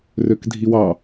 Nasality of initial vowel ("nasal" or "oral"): oral